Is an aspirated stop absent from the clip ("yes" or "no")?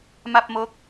yes